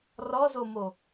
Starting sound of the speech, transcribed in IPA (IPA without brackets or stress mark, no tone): r